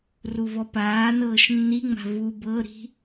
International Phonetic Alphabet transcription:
r u v ɔ p aː n ɤː ʃ nː i ŋ͡m a̤ v u b ɤ ɾ i̤

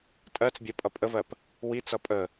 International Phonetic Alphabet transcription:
tʼ ɜ t͡s bʲ ɜ pʼ ʌ pʼ ə v ɜ p | w i t͡s ʌ pʼ ə

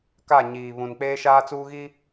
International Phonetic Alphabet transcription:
k a˦˨ ɲ iː˨ β ũ˨ n k͡p eː˦ ʃ aː˦ t͡s uː˦ ɣ i˦

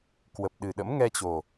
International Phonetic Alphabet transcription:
k w ə˨˩ p̚ ɗ ɨ˨˩ ɗ ə̰˧˥ m ŋ ɛ˧ t͡ɕ o˨˩

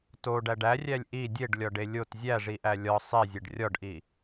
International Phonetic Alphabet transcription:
t o ɖ æ ɖ æ rʲ æ lʲ ʔ i dʲ e ɖ lʲ ɒ ɖ e lʲ o t zʲ æ ʐ i ʔ æ lʲ ɒ sˤ e zʲ e ɖ rʲ ɒ ɖ ʔ i

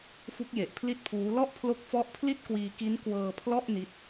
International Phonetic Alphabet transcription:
f u˦˥ k̚ j e˨˩ ʔ pʰ l i˥˩ t̚ pʰ uː˦˥ l ɔ˥˩ ʔ pʰ l o˦˥ k̚ f ɔ˦˥ ʔ pʰ l i˥˩ t̚ k w iː˧ k i˦˥ n k w ɤː˧ pʰ l ɔ˥˩ ʔ n i˦˥ t̚

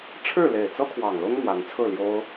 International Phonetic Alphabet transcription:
ʈ͡ʂʰ ɻ̩˥˨ l e˨˩ ɪ̯ t͡s ɤ˦ kʰ w ɑ˨˩ ŋ l ʊ˦ ŋ m w a˨˦ n t͡sʰ ɹ̩˥˨ l j o˦ ʊ̯

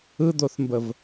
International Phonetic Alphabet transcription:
ɯ d̪ o θ m b ə v

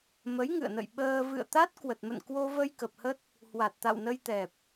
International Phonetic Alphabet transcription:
m ə˨˦ j ŋ ɨ̰˧˨ ə̯ n ə̰˧˨ j ɓ əː˧ v ɨ̰˧˨ ə̯ t̪ a˦˥ t̚ k w ə˨˩ t̚ m ə̰˧˨ n k w o˧ v ə˧ j k ə˨˩ p̚ h ə˦˥ t̚ | h w a˨˩ t̚ t̪ a̰˧˨ w n ə˧ j t̪ ɛ˨˩ p̚

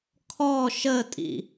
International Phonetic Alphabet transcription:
kʰ ɔ ʃ ə tʼ ḭ

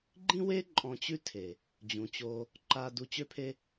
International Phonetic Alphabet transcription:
ɡ͡ǃ ĩ˦ w e˦ ǃʼ ɔ̃˧ t͡ɕ ʉ˦ tʰ e˨ | d͡ʑ ũ˨ t͡ɕ o˧ | ǃ a˧ d u˧ t͡ɕ ø˦ pʰ e˦

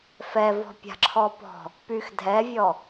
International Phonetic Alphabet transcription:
f ɛ v ɔ̤ pʲ a̤ ǁʰ ɔ p ɔ̤ | p y x dʱ ɛ vʲ ɔ

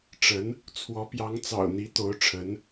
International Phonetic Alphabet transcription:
ʈ͡ʂ ə˧˥ n | t͡sʰ w ɔ˧˥ p j ɑ˧˥ ŋ t͡s ɑ̰˨˩ ʊ̯ n̪ i˧˥ t̪ o˧˥ ʊ̯ ʈ͡ʂʰ ə˧˥ n

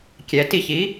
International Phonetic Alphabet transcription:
kʲ ɛ t i ç i

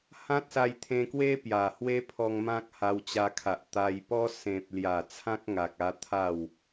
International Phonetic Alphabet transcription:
h ã˦ t̚ s a˧ j t̪ʰ ẽ˧ k w e˦ p j a˨˩ h w e˦ pʰ ɔ˧ ŋ m ã˦ k̚ h a˧ w t͡ɕ a˧ kʰ a˨ ʔ t̪ a˧ j p ɔ˦ s ẽ˨ p̚ l j a˨˩ t͡sʰ ã˦ k̚ ŋ a˨ k̚ a˧ t̪ʰ a˥˧ w

